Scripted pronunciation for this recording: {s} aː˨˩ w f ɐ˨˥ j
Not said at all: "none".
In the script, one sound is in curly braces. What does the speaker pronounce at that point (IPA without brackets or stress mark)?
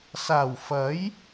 s